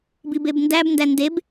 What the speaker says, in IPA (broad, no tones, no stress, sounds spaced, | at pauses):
b i b e b n d æ b n d æ n d e b